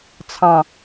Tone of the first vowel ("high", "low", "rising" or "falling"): low